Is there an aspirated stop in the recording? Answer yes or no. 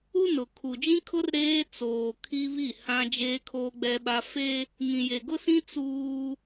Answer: yes